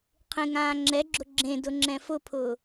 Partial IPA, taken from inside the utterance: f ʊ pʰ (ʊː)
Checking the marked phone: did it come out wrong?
no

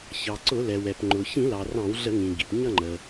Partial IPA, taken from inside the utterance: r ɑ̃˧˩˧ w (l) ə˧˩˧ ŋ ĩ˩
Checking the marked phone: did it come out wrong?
yes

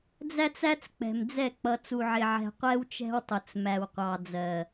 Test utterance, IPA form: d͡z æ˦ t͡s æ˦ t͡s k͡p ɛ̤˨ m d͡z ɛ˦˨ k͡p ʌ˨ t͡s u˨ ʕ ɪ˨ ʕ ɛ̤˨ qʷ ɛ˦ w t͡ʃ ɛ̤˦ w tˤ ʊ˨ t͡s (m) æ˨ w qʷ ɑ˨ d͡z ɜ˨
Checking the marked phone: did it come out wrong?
no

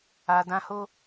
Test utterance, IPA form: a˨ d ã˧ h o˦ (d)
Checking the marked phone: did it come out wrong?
yes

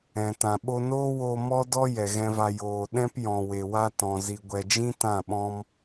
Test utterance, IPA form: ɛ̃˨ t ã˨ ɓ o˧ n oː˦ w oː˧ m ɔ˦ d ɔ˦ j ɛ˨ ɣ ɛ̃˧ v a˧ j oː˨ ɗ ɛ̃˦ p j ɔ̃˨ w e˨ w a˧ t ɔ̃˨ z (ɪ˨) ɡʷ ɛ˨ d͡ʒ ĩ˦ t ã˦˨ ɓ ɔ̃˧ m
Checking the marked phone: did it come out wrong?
yes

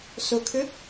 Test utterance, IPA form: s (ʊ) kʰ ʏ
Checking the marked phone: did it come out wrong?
no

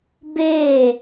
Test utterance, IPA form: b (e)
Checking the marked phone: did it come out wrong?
no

